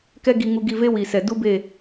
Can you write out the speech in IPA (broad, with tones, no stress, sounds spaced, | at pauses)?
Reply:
k ɛ˦ ɡ i˧ ŋ u˧ ɡ i˦˨ v e˦ w i˨ s ɛ˨ d u˦ b e˦˨